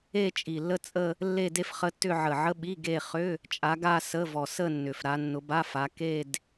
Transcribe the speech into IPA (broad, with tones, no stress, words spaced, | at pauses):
e˥˧t͡ʃʼi˨˩lːə˥˧t͡sʼə˥˧ | lːe˥˧de˥˧fχə˧˥˧tːʏ˥˧ ʕə˨˩ʕə˧˥˧ɓi˧˥˧ ɡe˥˧ χʏ˧˥˧ | t͡ʃʼa˨˦ɡa˥˧sə˧˥˧vɔ˨˩ sə˥˧ nːʏ˨˩fɾa˨˦ nːʊ˨˦ba˧˥˧ fa˨˦ ke˥˧d